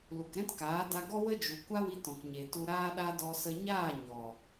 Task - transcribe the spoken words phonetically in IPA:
l u˨ k ɾ ɛ̃˦ t k aː˨˦ d a˧ ɡ ɔ˦ w ə˦ d͡ʒ u˨ kʷ a˦ w i˧ t ɔ̃˨ k ɲ e˨ t u˧ ɾ aː˦ ɗ a˦ d ɔ˧ s ə˧ ɲ aː˦˨ ɲ ɔ˨

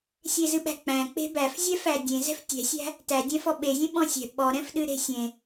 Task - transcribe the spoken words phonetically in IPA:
sʲ e z ɨ ɓ æ̤ k͡p æ̃ k͡p e̤ b æ f zʲ ɛ f æ dʲ ẽ z ɛ̤ f tʲ ɛ̤ sʲ æ̤ | t æ dʲ ɛ̃ f ɔ ɓ e zʲ ẽ ɓ ɔ̃ sʲ ɛ̤ ɓ ɔ ɾ ɛ̃ f ɗ ɨ ɾ e̤ sʲ ẽ

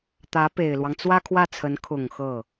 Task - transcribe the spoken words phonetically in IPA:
t̪ ä˧˥ p e˨˩ ɪ̯ l w ɑ˦ ŋ t͡s w ä˥ kʰ w ä˥˩ t͡sʰ ə˧˥ n kʰ ʊ˨˩ ŋ x ɤ˥˩

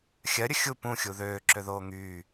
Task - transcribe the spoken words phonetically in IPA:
xʲ ɜ ɾʲ ə xʲ u p ũ xʲ u ð øː ǁ ø ð oː ŋ yː

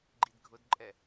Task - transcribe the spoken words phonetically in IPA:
ɡ͡ǃ i d ɡʱ ʊ d ǃʼ ɛ

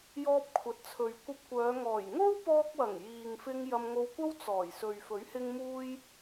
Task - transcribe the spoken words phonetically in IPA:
j ɔː˧ p̚ kʷʰ ɐ˨ t̚ t͡sʰ ɵ˨ ɥ kʷ ɐ˧ p̚ kʷ œː˨˧ ŋ ɔː˨˩ j ŋ o˥ w p ɔː˧ k̚ w ɐ˨˩ ŋ j iː˨ ŋ f ɪ˧ ŋ j ɐ˧ m ŋ o˧ w kʷ ɐ˥ w t͡s ɔː˨˩ j s ɵ˨ ɥ f ɵ˨˥ ɥ h ɪ˧ ŋ m uː˥ j

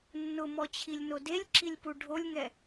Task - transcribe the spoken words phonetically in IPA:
nː ʊ m ɔ t͡ɕʰ i lʲ n o d e lʲ ǁ i lʲ p u ɖʱ o lʲ ŋ ɛ

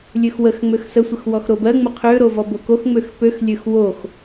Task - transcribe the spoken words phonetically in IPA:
lʲ ø x w ə x ŋ͡m ø x s ə sʷ ə x w ɔ x ɾ o b ɜ ŋ͡m ə qʰ ø ɾ o v ɔ b o k o x ŋ͡m ø x p ø x lʲ ø x w o x

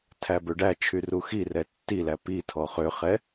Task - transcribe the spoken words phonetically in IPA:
tʰ æ b ø ɖ æ t͡ʃʰ y r u x i r ɛ tː i l æ p i tʰ ɔ χ ø χ ɛ

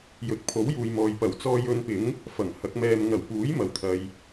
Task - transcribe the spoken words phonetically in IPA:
j ɵ˨ t̚ pʰ o˨˥ w j uː˨ j m ɔː˨ j p ɐ˨˩ w t͡s ɔː˧ j ɵ˧ n p ɪ˨˥ ŋ | f ɐ˨˩ ŋ h ɐ˨˥ k̚ m ɛː˧ m ŋ ɐ˨˩ w p uː˨˥ j m ɐ˨ w t̪ʰ ɐ˨ j

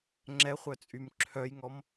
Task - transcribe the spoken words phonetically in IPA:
ŋ͡ǁ ɛ χʷ œ t͡sʼ y m ǁʰ œ j ŋ ɔ m

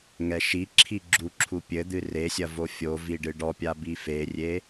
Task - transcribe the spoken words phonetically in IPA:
ŋ ɛ ʃ i ǁʰ i ɡ͡ǁ u ǁʰ u pʲ ɘ d̪ ɨ r e sʲ ɐ v o fʲ o v i ɖ ɨ ɖ ɔ pʲ a b i f e rʲ e

